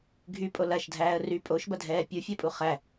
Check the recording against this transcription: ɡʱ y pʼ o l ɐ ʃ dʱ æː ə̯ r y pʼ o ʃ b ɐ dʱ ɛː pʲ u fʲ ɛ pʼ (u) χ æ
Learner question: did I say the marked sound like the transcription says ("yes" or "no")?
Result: yes